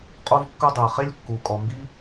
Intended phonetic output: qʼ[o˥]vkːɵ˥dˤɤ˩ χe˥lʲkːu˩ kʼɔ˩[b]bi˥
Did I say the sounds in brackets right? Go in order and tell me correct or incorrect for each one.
correct, incorrect: m

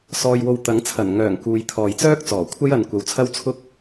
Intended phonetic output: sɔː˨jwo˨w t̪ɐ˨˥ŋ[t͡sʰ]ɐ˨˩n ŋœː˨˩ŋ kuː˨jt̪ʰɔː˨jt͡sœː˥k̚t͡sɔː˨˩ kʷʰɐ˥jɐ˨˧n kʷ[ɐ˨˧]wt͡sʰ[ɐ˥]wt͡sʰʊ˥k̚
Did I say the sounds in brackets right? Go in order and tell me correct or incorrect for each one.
correct, incorrect: ɐ˨, correct

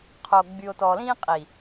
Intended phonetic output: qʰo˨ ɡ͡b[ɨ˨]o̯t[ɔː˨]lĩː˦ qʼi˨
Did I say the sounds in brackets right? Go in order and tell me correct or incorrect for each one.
incorrect: y˨, correct

